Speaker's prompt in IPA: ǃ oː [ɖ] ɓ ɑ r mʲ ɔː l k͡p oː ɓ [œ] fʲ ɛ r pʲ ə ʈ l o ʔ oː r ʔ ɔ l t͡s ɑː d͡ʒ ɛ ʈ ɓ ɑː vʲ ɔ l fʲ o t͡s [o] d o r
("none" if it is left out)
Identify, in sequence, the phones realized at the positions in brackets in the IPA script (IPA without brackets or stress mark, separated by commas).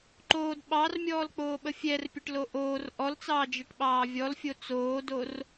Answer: d, ə, oː